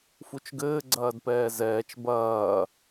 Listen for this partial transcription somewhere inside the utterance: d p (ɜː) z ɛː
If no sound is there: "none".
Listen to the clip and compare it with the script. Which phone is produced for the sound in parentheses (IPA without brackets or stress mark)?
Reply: ɛː